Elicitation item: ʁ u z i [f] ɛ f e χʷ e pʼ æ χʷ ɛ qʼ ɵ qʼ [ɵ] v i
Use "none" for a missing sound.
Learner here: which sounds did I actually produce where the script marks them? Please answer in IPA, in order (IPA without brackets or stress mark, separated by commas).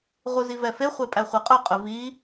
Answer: v, ɵ